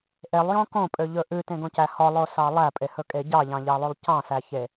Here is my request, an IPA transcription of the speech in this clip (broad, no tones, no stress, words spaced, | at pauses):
ʔelˠjõ kõpʼøʎɵ ʔʉtẽɡõcæ hɔlˠosɑ lˠæpʼehɵkʼe ɟɑʎɑ̃ʎɑlˠʉlˠ cɑ̃sæçe